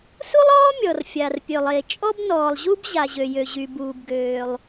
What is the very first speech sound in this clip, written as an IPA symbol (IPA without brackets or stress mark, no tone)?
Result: s